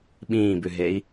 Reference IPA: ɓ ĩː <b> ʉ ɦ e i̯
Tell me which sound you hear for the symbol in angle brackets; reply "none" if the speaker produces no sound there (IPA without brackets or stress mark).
b